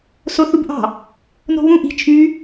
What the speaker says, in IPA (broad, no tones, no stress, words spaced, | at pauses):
soθubʔɑ̤ | no̤βũ ʔi̤ t͡ʃʰy